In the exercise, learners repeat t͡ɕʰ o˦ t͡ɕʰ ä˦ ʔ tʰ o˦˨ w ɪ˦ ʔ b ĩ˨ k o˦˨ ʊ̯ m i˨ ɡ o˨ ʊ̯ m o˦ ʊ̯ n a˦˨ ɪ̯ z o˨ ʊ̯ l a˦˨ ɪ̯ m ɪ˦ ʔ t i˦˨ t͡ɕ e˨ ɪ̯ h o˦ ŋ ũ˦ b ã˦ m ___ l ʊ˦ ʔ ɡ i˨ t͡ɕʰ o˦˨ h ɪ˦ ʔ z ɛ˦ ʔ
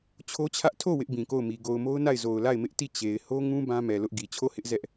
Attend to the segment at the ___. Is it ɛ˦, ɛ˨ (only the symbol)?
ɛ˨